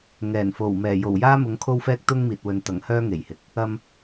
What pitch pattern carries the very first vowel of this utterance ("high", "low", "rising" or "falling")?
low